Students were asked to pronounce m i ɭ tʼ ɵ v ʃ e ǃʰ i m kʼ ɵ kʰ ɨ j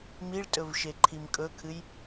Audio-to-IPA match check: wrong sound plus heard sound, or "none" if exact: none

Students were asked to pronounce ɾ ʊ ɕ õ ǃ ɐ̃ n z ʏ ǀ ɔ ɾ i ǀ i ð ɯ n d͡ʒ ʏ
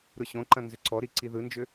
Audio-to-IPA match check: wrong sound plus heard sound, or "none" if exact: none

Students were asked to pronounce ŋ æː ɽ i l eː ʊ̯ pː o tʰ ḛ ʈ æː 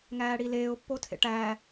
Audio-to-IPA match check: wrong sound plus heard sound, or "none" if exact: none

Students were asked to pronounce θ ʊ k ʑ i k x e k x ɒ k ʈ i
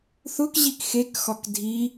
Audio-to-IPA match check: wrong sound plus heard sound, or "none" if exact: ʈ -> dʱ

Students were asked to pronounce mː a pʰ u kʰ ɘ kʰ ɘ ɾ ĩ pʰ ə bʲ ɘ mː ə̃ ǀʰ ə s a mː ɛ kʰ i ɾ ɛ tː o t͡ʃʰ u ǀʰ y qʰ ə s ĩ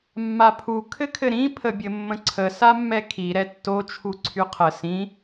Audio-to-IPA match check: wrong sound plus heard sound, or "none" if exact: none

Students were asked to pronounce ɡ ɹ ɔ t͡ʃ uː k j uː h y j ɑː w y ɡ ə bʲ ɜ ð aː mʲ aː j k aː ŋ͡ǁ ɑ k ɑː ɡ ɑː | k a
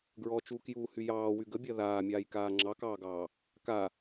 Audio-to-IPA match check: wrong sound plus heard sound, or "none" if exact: none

